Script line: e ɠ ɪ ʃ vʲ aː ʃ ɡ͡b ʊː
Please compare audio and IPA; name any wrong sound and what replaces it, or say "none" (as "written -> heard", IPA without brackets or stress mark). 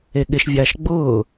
none